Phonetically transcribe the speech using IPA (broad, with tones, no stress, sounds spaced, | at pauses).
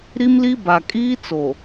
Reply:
ɾ i˦ m l i˦ b a˨ kʼ iː˦ t͡s o˨